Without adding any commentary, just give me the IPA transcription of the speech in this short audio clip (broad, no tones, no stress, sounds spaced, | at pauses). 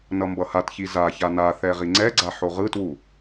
n ʌ m b ʌ h a t ç i z a ç a n a θ ɛ ʁ i ŋ͡ǀ ɛ ɡ͡ǀ a ħ o ʁ ɯ t w u